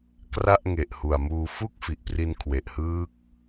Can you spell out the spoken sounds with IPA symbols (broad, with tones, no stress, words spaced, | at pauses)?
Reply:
kra˥˩ʔ ŋe˨˩ʔhu˨˩a̯muː˧fu˥˩k̚ fi˨˩ʔpri˧nkʰwe˨˩ʔhɯː˦˥k̚